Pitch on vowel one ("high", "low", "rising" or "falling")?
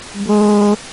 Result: high